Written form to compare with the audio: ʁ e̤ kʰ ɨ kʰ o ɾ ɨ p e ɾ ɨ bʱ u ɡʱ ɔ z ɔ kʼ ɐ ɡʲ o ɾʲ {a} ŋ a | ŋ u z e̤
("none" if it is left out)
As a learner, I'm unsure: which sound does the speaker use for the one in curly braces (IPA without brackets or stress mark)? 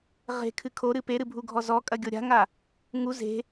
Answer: a̤